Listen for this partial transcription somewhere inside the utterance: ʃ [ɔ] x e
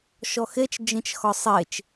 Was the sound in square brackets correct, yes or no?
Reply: yes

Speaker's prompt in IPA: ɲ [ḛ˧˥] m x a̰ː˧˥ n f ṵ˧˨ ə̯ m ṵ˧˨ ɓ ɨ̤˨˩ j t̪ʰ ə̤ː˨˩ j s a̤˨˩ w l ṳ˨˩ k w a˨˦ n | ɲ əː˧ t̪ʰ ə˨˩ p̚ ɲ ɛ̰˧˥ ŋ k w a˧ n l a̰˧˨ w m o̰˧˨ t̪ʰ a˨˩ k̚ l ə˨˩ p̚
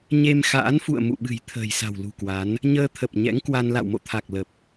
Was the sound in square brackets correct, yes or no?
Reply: no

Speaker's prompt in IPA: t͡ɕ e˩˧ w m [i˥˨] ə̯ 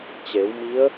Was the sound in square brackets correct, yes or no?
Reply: no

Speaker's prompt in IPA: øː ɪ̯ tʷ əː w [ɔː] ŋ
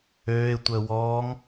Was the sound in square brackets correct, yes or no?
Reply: yes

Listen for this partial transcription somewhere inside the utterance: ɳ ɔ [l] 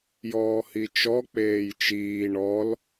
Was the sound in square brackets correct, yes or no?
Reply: yes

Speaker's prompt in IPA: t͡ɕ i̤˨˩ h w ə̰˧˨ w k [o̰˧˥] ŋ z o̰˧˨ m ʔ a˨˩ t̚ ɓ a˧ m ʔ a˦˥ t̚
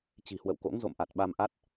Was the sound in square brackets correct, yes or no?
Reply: yes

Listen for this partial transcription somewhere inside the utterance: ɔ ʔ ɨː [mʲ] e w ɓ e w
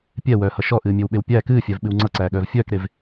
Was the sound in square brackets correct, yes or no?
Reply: yes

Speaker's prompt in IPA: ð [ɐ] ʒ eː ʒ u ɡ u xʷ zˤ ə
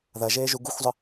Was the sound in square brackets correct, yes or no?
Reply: yes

